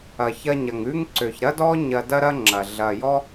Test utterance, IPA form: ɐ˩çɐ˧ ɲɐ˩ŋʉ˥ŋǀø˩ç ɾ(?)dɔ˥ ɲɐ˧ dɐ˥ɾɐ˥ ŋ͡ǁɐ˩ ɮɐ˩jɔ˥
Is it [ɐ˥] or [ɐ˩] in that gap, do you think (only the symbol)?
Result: ɐ˥